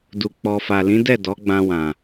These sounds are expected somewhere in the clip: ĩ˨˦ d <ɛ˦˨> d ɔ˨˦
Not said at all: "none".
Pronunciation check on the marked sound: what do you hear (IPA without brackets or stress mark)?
ɛ˦˨